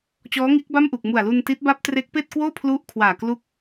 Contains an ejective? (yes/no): no